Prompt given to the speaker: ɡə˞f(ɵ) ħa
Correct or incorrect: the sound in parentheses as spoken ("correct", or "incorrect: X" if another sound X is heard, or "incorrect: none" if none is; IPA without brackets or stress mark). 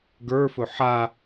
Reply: correct